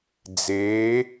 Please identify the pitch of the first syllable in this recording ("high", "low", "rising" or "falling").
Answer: rising